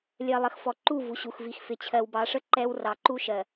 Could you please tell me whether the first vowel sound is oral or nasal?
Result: oral